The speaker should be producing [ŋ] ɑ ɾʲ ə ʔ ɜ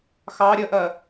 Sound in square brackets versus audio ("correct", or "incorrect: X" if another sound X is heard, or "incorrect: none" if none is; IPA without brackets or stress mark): incorrect: x